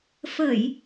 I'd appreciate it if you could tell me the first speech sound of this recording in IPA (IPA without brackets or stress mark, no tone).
f